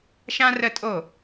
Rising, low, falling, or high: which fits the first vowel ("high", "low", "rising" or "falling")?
high